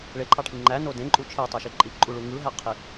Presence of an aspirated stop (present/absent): present